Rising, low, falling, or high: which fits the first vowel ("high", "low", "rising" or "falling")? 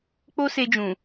high